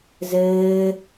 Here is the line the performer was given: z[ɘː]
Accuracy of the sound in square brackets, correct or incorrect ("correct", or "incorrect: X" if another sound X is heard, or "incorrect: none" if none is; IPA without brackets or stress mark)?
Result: correct